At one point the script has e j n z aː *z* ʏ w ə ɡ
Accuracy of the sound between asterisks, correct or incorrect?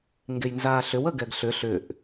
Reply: incorrect